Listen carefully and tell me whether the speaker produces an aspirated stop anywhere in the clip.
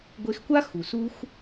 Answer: no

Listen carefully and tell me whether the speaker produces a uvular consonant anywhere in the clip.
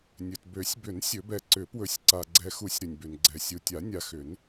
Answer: no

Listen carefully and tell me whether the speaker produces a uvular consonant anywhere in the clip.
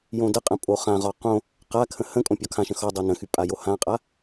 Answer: yes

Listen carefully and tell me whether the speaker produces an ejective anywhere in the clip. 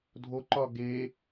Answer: no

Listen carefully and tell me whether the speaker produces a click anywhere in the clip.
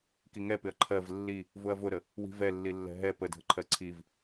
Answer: yes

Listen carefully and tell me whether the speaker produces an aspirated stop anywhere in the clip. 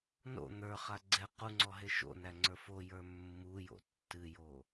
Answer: no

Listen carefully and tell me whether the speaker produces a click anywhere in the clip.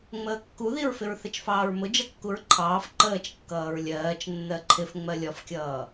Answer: yes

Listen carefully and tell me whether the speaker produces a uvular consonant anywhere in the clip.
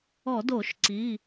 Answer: no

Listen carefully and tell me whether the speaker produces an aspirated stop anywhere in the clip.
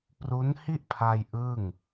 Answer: yes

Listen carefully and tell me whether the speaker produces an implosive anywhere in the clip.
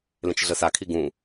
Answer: no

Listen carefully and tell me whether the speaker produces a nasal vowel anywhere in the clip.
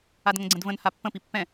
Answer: yes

